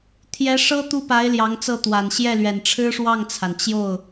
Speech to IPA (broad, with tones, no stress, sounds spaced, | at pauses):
t̪ʰ j ɛ˧˥ ʂ ɤ˥ t̪ u˥ p a˧˥ ɪ̯ l j ɑ˧˥ ŋ t͡s ɤ˥˩ t̪ w a˨˩ n ɕ j ɛ˥˩ l ɥ ɛ˨˩ n ʈ͡ʂʰ ɻ̩˥ ʂ w ɑ˥˩ ŋ t͡sʰ a˩ n t͡ɕ j o˥˩ ʊ̯